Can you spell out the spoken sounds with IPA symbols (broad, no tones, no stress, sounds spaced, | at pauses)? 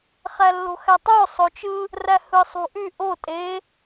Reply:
χ æ lː o̤ x æ tˤ o sˤ o t͡ʃ ɯ | r æ h ɯ sˤ ṳ ʔ y ʔ o tʼ e